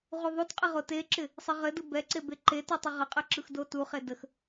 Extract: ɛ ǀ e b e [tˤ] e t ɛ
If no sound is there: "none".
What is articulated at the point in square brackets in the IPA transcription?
ǃ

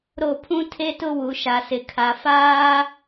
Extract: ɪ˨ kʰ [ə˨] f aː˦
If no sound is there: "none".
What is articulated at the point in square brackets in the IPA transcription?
a˨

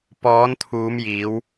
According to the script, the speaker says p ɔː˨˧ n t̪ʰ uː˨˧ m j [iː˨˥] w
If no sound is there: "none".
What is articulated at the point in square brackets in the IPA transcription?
iː˨˧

